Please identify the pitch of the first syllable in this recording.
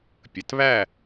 low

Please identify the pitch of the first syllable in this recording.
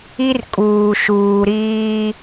high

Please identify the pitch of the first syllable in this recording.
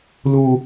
high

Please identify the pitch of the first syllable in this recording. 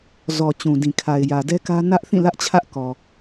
low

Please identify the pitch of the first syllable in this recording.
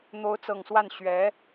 rising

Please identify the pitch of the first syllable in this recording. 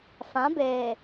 rising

